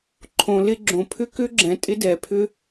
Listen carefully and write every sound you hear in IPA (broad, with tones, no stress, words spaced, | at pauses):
ǃʰõ˩lɪ˥ɡ͡ǁõ˩ pʰʏ˥kʏ˥ɡ͡ǁɛ̃˩ tʼɪ˥dɛ˩pʰʏ˥